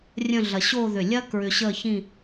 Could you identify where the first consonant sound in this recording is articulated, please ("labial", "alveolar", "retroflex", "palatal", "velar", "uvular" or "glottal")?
alveolar